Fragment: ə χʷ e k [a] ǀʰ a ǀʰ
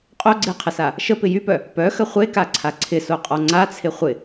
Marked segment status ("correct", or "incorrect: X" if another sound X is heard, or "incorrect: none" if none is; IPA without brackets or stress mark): correct